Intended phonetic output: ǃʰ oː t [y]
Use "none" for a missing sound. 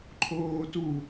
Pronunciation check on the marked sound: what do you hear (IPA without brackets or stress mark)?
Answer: u